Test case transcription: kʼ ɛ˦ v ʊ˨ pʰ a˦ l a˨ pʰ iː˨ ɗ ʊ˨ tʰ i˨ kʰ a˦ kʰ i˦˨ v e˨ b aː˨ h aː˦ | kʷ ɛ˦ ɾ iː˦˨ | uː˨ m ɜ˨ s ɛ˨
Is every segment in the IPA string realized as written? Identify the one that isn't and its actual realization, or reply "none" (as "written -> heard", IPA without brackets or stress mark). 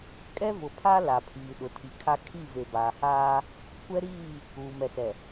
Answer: ɜ˨ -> ɛ˨